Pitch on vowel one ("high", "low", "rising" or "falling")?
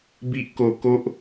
high